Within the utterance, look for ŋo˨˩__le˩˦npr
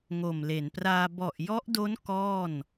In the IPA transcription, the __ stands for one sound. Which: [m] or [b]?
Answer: m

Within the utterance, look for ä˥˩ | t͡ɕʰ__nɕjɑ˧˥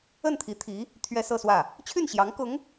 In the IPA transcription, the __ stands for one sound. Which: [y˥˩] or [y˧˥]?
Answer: y˥˩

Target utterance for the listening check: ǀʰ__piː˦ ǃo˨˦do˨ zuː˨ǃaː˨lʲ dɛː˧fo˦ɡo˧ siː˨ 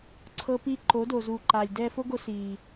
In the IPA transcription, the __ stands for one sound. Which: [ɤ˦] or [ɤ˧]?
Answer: ɤ˦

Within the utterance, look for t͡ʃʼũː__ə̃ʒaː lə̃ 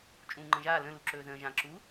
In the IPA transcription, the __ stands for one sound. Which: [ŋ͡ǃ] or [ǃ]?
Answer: ŋ͡ǃ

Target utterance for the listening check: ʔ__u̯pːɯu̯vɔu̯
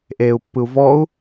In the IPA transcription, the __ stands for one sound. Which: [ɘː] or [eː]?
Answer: eː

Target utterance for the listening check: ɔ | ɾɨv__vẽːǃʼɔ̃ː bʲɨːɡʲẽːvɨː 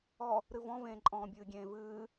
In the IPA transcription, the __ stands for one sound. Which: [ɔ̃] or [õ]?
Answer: ɔ̃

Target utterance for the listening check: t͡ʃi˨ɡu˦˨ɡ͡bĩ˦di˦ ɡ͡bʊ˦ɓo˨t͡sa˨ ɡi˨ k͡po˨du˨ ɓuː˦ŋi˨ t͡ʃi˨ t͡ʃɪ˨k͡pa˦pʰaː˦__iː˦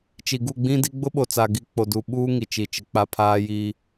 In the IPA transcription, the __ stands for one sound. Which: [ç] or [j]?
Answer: j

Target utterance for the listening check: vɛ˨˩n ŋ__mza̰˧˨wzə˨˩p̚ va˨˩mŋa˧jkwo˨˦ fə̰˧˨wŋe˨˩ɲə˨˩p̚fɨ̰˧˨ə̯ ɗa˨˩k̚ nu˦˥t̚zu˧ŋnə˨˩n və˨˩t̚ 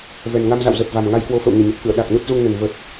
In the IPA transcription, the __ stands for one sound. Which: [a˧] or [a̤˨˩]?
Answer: a˧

